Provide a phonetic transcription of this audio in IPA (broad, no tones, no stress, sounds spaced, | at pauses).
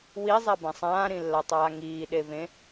w i zˤ a b ã sˤ ãː ɾ ĩ lː a tˤ aː ŋ iː ɗ e v ẽ